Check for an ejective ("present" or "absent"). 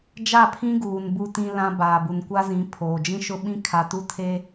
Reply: absent